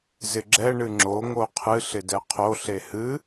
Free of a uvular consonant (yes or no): no